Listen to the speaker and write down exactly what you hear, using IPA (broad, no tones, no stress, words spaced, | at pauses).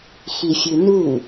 xifʲunu